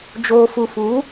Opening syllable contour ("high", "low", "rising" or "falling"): low